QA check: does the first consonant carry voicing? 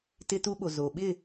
no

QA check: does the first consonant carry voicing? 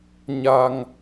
yes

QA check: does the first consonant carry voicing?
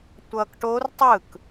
no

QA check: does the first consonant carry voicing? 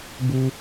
yes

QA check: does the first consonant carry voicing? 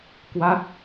no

